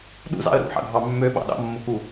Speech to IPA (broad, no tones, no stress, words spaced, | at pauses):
ɗṵzɑ̰ə̯ ɾṵħɑ̰ɡʱɑ mːøɓɑ̰ ɗɑ̰mːoku